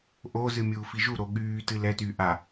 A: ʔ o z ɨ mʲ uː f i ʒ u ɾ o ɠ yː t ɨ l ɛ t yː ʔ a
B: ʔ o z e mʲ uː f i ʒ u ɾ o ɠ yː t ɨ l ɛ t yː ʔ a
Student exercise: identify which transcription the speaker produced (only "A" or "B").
A